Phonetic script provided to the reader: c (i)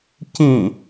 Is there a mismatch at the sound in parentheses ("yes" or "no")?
yes